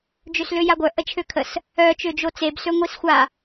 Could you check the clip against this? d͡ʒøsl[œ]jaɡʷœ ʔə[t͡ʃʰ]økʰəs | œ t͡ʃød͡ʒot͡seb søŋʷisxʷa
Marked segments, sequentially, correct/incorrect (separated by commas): incorrect, correct